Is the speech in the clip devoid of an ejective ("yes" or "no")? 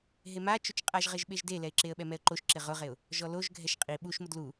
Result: no